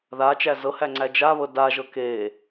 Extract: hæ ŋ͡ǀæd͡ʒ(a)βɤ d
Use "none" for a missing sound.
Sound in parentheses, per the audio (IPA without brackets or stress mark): a